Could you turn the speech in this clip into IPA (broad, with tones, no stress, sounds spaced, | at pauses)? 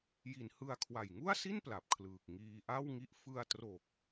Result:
j i˩˦ n h ɯ˧ a̯ kʰ w a˨˩ j ŋ u˥˩ a̯ s i˥˩ n p l a˨˩ p̚ kʰ l ɯː˨˩ k̚ ŋ iː˧ ʔ a˥˩ w ŋ i˦˥ ʔ f ɯ˧ a̯ t r o˨˩ k̚